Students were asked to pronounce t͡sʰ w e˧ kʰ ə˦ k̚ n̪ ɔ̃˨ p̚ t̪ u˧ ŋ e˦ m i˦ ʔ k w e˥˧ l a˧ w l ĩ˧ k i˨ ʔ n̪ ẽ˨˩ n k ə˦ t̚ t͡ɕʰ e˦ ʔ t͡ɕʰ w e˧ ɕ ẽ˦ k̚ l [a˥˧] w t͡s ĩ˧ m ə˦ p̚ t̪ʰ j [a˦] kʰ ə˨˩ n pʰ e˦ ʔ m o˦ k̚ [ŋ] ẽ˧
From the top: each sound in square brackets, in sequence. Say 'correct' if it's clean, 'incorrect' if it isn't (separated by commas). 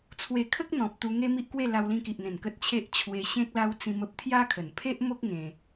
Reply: incorrect, correct, correct